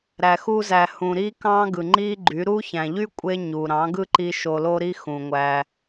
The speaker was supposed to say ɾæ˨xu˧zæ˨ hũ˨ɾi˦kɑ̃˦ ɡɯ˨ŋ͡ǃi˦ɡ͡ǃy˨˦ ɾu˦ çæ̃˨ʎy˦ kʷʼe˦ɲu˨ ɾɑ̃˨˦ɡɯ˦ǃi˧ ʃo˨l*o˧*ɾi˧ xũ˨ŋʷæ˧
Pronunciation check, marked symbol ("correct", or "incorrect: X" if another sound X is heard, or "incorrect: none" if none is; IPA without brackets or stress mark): correct